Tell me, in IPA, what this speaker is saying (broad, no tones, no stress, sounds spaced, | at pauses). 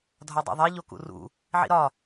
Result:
dʱ ɒ dˤ ḭ ðˤ e ʎ o k ṵ r ṵ | ʕ ḭ ɾ ɒ